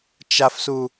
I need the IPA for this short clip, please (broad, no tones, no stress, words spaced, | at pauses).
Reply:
t͡ʃafsu